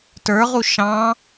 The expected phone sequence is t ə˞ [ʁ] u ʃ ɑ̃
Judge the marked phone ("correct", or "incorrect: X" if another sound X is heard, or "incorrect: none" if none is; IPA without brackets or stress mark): correct